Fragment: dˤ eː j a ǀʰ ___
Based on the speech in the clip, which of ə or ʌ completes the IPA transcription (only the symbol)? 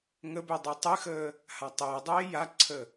ə